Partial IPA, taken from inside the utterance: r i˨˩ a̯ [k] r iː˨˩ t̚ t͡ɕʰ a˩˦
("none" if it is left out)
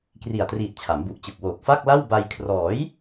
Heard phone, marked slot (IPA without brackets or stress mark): t